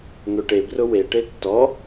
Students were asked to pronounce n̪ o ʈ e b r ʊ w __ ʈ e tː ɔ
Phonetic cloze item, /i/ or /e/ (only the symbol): e